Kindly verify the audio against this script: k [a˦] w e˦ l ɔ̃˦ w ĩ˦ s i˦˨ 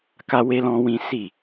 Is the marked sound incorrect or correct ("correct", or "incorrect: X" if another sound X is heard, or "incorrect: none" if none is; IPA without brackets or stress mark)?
correct